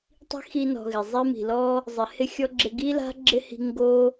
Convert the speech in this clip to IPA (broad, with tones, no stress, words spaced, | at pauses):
tˤi̤˥xi˦nɔ̤˨ɣɪ˩ zˤe˥mi̤˨lɔ˥ | zˤɪ˨hɪ˥xʲɔ˥ɡ͡ǁɪ˦ ɡi˥la̤˥ ɡ͡ǁɪ˥hi̤˦ ŋɡo˥